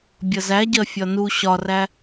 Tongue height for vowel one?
mid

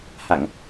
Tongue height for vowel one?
low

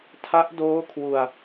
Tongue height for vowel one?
low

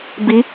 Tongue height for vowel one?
high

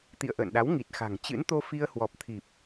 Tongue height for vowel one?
high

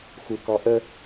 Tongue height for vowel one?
high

